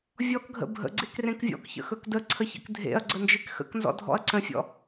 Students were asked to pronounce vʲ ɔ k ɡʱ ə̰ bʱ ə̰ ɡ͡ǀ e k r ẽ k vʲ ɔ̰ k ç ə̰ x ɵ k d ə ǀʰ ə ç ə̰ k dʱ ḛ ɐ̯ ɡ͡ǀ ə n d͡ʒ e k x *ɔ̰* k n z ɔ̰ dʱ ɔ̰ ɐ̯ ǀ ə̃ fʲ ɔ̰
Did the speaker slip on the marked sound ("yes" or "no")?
yes